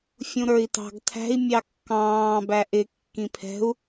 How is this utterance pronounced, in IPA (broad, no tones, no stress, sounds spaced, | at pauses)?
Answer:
fʲ ũ ɾ ə˞ i̯ t ɑ̤ ɡ tʰ æ̤ i̯ mʲ ɑ kː ɑ̃ː b æ ʔ ɪ kː ĩ pʰ ɛ̤ u̯